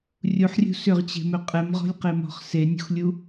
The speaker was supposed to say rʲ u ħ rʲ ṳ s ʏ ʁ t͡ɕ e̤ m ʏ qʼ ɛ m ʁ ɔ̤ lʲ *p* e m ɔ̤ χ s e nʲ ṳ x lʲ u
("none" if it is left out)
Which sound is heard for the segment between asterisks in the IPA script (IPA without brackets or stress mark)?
q